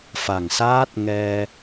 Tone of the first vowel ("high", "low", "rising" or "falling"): low